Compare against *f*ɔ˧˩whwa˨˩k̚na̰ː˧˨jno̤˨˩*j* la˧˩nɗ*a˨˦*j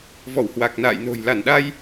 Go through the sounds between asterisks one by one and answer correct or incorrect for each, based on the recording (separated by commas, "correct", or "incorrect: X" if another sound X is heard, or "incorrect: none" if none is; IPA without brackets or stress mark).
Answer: incorrect: v, correct, incorrect: a˧